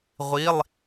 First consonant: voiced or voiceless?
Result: voiced